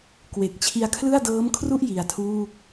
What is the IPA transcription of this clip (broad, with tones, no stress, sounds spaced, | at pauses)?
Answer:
k w e˨˩ k̚ t͡ɕʰ i˧ a̯ kʰ l ɯ˥˩ a̯ d ɤː˦˥ m kʰ r u˥˩ ʔ j i˧ a̯ tʰ uː˥˩ k̚